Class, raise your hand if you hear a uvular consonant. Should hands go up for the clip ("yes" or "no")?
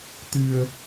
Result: no